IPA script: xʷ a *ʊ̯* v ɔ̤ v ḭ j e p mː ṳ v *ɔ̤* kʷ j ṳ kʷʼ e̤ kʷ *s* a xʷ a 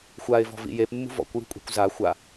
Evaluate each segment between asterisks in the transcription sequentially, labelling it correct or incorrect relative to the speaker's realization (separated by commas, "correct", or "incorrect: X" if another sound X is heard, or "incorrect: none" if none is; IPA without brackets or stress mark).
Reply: incorrect: ɪ̯, incorrect: ɔ̰, incorrect: z